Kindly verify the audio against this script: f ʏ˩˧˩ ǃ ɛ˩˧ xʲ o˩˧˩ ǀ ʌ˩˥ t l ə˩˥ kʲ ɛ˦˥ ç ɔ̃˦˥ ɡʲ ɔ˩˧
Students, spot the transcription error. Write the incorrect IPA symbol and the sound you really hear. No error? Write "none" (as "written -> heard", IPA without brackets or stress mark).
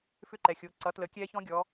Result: ʏ˩˧˩ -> ʏ˦˥